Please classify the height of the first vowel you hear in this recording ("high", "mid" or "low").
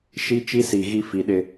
high